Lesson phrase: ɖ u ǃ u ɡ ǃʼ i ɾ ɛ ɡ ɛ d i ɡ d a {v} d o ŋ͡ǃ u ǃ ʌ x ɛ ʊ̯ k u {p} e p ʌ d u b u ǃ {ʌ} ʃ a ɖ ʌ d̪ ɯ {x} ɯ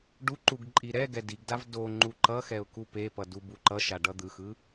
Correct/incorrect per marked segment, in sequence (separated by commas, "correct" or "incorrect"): correct, correct, correct, correct